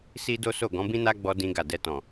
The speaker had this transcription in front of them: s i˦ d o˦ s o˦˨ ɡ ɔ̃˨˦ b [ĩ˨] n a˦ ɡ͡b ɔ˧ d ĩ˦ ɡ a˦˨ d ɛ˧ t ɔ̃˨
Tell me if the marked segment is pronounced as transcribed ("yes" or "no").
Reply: no